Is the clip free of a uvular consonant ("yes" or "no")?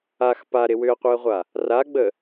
no